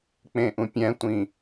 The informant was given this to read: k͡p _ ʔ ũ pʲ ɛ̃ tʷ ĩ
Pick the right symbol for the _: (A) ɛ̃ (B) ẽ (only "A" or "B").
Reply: B